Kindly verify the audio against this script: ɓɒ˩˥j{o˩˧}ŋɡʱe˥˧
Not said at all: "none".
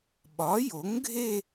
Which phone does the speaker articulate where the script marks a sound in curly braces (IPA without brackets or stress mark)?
o˩˥